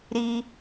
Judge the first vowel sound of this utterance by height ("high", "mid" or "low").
high